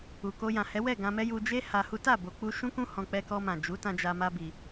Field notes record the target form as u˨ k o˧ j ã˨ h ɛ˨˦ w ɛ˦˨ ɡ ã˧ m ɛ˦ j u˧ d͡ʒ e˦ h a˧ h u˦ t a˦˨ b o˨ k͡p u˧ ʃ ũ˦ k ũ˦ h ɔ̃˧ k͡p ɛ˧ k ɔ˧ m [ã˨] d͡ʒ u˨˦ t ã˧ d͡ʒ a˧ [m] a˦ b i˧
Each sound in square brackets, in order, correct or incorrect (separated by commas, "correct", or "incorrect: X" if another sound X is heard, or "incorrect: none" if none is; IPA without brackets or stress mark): correct, correct